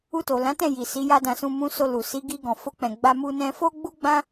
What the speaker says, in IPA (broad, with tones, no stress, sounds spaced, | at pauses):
u˧ t o˨ l ã˨˦ t ɛ̃˦˨ j i˨ s i˨˦ j a˦ d ã˧ s ũ˧ m ũ˧ s o˧ l u˨ s i˨˦ ɡ i˧ ɡ ɔ̃˨ f o˧ k͡p ɛ̃˨ ɡ͡b a˧ m u˧ n ɛ̃˧ f o˦ ɡ͡b u˦ ɡ͡b ã˦